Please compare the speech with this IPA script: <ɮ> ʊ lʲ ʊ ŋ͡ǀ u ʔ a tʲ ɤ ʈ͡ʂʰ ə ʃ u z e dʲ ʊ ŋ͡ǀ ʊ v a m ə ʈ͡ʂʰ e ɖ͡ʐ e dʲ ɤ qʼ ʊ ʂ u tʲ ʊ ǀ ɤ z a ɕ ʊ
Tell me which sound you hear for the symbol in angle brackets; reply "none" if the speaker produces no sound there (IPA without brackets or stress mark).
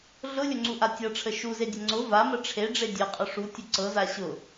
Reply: ɮ